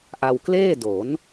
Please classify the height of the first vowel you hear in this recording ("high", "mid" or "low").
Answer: low